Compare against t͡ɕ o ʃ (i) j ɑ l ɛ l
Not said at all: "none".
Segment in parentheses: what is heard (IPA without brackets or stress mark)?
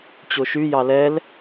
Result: y